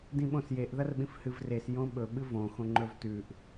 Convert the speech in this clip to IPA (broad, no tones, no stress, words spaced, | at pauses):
dĩɓõsjeʔ ðɐrɓĩfhɨvres jõɓɵ ɓɨvõ xõŋ͡ǃɵvtʉʔ